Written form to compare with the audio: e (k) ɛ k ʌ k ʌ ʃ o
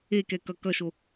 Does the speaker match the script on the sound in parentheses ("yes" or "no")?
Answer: yes